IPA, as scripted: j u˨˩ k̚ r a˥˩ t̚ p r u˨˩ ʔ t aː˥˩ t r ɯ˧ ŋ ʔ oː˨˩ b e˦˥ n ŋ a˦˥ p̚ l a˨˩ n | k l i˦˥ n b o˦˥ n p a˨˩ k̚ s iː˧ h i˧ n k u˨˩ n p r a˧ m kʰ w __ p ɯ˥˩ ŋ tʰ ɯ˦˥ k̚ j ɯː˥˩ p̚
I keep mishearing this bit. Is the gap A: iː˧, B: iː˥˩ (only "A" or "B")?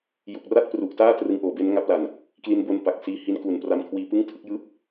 A